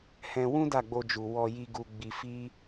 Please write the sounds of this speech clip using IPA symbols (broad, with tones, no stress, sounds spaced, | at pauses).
h ɛ̃˧ w ũ˦ d a˦˨ ɡ͡b o˧ d͡ʒ u˨ w ɔ˧ j i˧ ɡ u˧ ɡ͡b i˧ f i˦